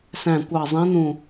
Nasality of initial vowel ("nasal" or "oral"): nasal